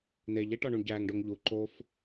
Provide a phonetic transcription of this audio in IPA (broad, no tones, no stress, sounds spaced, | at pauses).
n̪ e ʎ e ʈ ɒ ɳ u ɳ ɟ æ ŋ ɖ o ŋ ʎ u ǃ o f